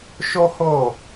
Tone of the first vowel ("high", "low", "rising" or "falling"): high